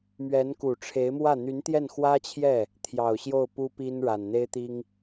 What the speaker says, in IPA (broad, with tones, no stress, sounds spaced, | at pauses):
m ɥ ɛ˧˥ n k u˨˩ ʈ͡ʂʰ e˧˥ ɪ̯ m w ä˥˩ n̪ y˧˥ n t̪ j ɛ˥˩ n x w ä˥ t͡ɕʰ j ɛ˥˩ | t̪ʰ j ɑ˨˩ ʊ̯ ɕ j o˥˩ ʊ̯ p u˥ p i˥ n ɻ a˨˩ n n̪ e˥ ɪ̯ t̪ i˥ ŋ